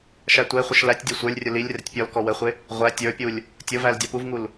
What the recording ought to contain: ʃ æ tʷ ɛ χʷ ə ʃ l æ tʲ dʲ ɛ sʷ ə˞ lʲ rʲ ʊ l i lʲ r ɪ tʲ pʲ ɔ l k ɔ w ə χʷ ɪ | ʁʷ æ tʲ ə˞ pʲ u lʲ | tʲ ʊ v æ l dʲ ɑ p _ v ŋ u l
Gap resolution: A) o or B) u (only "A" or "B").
B